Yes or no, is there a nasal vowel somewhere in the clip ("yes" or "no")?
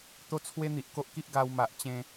yes